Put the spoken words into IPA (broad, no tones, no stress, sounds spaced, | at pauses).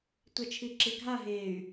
tʷ ɛ t͡ʃʰ i ǁ i ɡʱ a ɦ e y̯